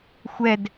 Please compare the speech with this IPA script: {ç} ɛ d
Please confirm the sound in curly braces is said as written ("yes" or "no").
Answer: no